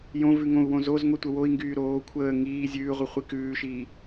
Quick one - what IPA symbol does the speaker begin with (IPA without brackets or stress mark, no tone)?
j